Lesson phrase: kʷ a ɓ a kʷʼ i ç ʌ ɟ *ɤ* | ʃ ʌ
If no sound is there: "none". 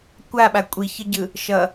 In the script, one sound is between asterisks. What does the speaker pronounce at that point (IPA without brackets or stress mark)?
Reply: ɯ